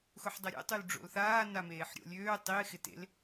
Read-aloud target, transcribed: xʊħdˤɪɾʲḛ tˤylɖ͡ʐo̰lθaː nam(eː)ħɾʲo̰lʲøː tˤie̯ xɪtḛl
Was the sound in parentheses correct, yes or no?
yes